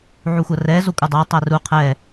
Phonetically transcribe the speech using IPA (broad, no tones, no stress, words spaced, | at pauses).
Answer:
ʕuxʷɐrɛ zokʷʼɘdˤɐ tˤæru qʰɛ